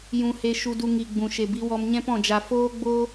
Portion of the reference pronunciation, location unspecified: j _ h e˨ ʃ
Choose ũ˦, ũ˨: ũ˨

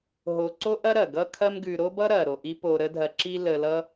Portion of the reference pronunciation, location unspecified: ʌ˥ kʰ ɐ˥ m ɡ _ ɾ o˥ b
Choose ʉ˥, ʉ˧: ʉ˧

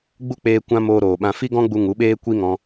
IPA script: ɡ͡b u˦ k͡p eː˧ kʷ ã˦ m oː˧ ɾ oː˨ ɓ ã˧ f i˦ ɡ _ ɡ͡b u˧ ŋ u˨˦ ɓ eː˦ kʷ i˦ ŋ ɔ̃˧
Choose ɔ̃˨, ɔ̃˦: ɔ̃˦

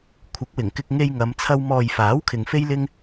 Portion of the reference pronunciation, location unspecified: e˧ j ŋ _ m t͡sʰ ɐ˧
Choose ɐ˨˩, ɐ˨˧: ɐ˨˧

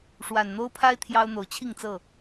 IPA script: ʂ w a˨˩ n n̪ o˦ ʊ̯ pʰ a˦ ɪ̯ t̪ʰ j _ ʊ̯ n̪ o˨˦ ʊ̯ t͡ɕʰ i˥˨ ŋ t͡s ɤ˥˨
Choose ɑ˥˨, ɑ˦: ɑ˦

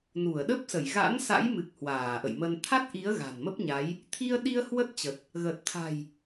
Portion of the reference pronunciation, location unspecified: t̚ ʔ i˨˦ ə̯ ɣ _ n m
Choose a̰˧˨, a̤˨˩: a̤˨˩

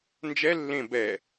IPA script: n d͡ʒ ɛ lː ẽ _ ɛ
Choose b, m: b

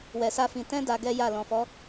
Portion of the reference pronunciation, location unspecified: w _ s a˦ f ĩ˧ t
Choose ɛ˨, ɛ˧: ɛ˧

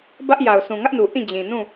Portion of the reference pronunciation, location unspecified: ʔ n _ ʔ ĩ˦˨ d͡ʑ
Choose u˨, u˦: u˨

